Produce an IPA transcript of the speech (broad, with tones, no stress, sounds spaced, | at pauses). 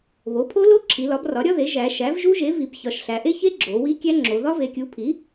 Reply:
β o˩˥ pʰ o˦˥ l o˦˥ ǁʰ i˩˧ l ɒ˩˥ b r ɒ˩˥ ɾʲ ɒ˦˥ ð e˩˥ ʒ æ˩˧ ʃ æ˩˥ v ʒ u˦˥ ʒ e˩˥ v i˩˧ b ç ɒ˩˧ ʃ ɬ æ˩˧ ʔ e˦˥ ç e˦˥ ɡ͡ǁ o˩˧ w i˦˥ kʲ æ˦˥ ŋ͡ǁ o˩˧ ð ɒ˦˥ v e˩˧ kʲ u˩˥ pʰ i˩˥